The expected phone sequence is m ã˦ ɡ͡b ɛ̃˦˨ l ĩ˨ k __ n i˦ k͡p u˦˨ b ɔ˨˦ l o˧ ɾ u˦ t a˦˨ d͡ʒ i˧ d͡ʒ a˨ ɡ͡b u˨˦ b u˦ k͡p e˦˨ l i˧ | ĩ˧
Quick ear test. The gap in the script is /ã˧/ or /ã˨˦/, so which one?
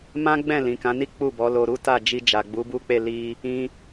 ã˨˦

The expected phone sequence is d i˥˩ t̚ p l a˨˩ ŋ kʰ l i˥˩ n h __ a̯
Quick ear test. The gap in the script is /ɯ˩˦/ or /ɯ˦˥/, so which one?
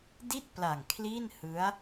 ɯ˦˥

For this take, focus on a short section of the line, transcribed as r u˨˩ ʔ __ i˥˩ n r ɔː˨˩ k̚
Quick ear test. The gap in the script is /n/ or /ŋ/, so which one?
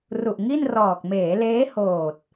ŋ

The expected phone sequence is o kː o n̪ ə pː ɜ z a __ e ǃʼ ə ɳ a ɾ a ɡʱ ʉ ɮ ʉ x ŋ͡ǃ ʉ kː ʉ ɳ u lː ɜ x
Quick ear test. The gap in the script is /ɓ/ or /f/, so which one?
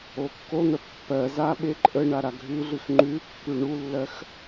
ɓ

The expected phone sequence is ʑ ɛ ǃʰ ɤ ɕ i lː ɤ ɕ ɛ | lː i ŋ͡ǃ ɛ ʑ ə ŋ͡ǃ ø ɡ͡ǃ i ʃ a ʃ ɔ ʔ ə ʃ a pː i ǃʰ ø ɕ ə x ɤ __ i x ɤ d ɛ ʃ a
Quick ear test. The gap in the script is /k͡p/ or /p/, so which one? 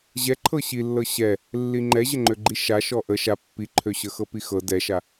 p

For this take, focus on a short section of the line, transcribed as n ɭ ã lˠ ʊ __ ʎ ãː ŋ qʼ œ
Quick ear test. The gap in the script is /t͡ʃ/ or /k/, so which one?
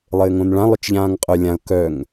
t͡ʃ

